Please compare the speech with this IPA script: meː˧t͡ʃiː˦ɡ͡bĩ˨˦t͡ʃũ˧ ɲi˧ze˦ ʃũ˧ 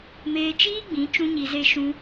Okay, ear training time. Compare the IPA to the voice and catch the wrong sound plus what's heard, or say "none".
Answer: none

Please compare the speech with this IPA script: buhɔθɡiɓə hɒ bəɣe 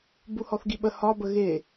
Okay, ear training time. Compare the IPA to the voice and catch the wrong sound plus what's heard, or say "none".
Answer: none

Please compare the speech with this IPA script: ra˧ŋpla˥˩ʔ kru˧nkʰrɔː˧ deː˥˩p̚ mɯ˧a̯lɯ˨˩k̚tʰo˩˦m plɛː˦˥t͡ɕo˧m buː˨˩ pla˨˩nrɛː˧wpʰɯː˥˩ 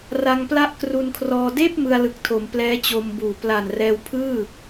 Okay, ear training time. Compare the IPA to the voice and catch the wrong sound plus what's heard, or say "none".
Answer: none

